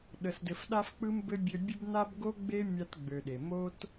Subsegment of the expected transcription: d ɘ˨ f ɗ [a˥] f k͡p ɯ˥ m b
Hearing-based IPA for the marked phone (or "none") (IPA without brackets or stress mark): a˥